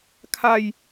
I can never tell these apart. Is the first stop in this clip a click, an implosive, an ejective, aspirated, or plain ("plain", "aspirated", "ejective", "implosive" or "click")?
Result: aspirated